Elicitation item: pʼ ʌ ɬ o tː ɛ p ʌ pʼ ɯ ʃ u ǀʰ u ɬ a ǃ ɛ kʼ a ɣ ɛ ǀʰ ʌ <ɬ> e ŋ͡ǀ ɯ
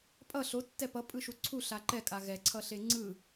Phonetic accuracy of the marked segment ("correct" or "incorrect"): correct